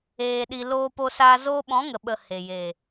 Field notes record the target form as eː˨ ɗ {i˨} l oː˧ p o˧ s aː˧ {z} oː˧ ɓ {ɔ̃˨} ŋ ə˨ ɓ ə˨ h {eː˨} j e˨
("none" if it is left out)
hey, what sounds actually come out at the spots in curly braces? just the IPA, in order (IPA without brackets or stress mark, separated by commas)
i˨, z, ɔ̃˨˦, e˨